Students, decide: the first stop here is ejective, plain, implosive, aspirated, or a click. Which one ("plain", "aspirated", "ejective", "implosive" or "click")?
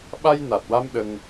implosive